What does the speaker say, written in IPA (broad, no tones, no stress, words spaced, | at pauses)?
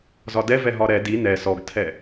zɒdɛvɛ ɦɒɾɛ di nɛ sɔɡtʰɛ